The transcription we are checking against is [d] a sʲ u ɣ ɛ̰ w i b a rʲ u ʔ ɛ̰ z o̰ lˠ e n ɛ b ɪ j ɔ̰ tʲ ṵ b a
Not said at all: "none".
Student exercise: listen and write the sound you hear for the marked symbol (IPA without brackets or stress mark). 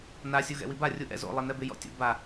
n